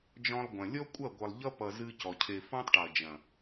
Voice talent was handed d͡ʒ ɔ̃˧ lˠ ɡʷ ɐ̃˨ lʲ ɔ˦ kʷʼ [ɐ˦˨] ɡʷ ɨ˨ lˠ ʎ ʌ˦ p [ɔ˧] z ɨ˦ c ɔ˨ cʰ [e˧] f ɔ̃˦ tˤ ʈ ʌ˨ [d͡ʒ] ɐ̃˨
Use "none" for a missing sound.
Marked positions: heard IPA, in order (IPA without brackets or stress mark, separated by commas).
ɐ˦˨, ʌ˧, e˧, d͡ʒ